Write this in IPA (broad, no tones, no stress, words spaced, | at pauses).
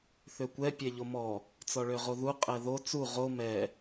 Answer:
θøkʷɛ pʲɛʎomɔ | t͡sɔɭøʁoðu qʼɛðo t͡su ʁo mɛ